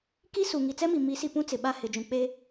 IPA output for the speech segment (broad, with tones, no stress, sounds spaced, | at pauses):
k i˦ s u˨ ŋ i˨ t͡s ɛ˦ m i˨ m i˨˦ s i˨ p ũ˦ t͡s ɪ˨ ɓ a˦ h ɪ˨ d͡ʒ ũ˨ k͡p eː˦